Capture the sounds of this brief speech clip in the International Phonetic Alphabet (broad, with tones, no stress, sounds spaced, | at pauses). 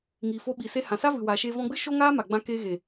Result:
ŋ iː˨ f o˧ ɓ i˨ s e˧ h ã˨ s a˦ v ɨ˨ w aː˨ ʃ eː˧ v ɔ̃˧ ɡ͡b ɨ˦ ʃ o˦ ŋ aː˦ m a˨ ɡ͡b ã˧ k eː˧ ɣ e˨